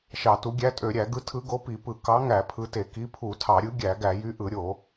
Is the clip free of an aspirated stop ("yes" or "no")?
no